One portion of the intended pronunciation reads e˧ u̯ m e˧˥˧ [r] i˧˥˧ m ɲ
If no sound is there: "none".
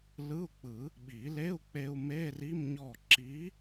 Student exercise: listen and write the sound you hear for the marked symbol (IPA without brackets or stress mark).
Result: r